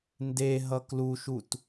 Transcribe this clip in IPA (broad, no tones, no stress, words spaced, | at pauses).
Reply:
nde ɦʌkluʃut